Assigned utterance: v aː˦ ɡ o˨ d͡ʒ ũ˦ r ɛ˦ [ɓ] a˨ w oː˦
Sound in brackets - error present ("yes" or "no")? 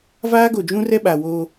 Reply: no